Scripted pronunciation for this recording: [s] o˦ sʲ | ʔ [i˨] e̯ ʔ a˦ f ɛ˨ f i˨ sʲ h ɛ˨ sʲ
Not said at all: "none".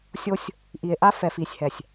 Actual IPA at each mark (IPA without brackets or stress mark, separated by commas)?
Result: sʲ, i˨